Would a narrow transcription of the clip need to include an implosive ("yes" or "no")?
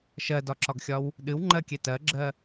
yes